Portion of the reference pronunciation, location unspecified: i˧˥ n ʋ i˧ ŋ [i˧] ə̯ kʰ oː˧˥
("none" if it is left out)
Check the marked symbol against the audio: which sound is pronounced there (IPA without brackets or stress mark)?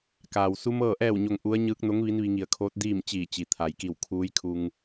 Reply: i˧˩